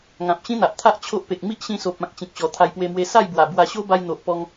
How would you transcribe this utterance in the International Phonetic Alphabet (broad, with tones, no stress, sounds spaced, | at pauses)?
ŋ ã˨ p̚ ɕ ĩ˦ n̪ a˨ ʔ t̪ʰ a˦ ʔ t͡ɕʰ o˦ ʔ p e˨ k̚ m i˦ ʔ ɕ ĩ˧ s o˨ p̚ ã˨ k̚ t͡ɕ ĩ˨ k̚ ɕ ɔ˨˩ t̪ʰ a˧ j p w e˧ m w e˧ s a˥˧ j b w a˨˩ b w a˧ ɕ o˦ b a˧ j n̪ o˨ ʔ p ɔ˧ ŋ